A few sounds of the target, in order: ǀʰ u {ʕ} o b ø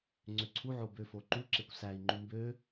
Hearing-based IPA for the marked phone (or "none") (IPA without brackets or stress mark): ʕ